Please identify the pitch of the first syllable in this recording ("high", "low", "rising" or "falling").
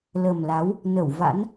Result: low